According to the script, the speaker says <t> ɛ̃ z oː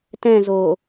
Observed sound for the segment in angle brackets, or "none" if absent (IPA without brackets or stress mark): t